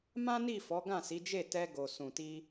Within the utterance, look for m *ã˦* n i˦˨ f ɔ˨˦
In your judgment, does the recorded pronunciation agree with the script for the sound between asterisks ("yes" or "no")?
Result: yes